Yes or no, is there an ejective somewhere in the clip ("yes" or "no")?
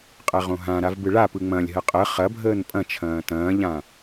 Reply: yes